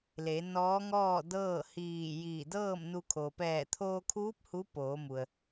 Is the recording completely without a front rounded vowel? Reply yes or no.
yes